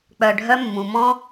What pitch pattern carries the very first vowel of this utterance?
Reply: low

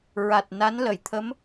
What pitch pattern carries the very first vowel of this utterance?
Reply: low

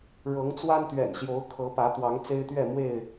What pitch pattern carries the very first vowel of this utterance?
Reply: rising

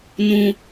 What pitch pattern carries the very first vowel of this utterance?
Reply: high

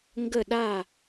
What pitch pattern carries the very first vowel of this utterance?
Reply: falling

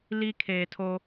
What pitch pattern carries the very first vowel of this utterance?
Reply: high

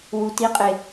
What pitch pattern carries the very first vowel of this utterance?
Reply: low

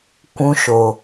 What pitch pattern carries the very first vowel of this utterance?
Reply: high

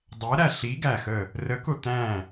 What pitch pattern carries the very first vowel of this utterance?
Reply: rising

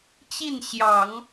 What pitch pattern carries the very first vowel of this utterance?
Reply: falling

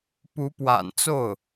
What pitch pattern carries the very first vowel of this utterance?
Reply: rising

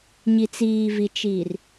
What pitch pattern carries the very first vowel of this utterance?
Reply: low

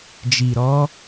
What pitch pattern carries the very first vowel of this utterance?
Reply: low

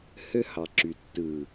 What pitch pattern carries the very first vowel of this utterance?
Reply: high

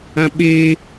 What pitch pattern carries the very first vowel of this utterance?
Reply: high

